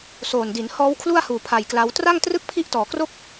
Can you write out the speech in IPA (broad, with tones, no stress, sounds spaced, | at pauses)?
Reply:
s oː˨˩ n d i˩˦ n h ɔː˦˥ w kʰ l u˥˩ a̯ h uː˨˩ pʰ a˨˩ j k l a˦˥ w t r a˥˩ ŋ t r ɯ˥˩ k̚ pʰ i˦˥ ʔ t ɔː˩˦ k r o˥˩ k̚